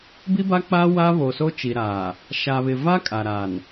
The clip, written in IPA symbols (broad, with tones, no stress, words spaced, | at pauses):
bi˦ba˦k͡paː˦ waː˦βoː˨so˦ t͡ʃi˨ɾaː˨ | ʃa˨βɪ˨ va˦ kʼa˨ɾa˨n